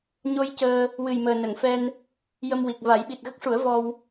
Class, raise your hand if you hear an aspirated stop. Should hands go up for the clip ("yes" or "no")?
no